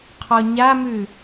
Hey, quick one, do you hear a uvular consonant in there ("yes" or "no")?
yes